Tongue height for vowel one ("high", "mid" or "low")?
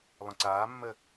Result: mid